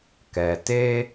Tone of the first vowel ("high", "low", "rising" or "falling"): low